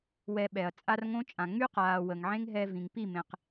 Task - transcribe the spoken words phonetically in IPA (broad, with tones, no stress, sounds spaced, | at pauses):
w ɛ˧ ɓ ɛ˨ ɐ̯ t͡sʼ a˦ r ŋ õ˦ t͡ʃʼ ã˨ ŋ͡m y˦ q aː˨ w ə˨ ŋ ʕ ẽ˦ ŋ ɦ ɛ˧ v ĩ˨ ŋ p i˦˨ m ẽ˨ q